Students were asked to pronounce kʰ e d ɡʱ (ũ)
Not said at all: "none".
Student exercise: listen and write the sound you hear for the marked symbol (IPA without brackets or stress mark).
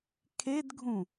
ũ